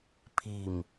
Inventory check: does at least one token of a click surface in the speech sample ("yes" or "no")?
no